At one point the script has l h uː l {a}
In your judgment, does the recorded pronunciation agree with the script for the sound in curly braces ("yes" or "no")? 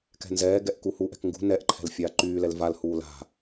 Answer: no